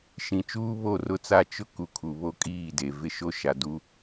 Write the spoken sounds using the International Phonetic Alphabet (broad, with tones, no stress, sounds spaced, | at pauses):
ʃ ĩ˨ t͡ʃ uː˦ β o˦˨ r ʊ˦ t͡s a˦˨ t͡ʃ ʊ˦ k u˨ kʰ u˨ β o˦ kʼ iː˦˨ d e˨ v ɪ˦ ʃ o˦ ʃ a˨ d u˦